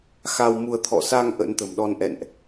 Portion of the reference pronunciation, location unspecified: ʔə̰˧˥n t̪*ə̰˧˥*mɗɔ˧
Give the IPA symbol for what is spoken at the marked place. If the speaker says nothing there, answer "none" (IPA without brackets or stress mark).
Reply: ə̤˨˩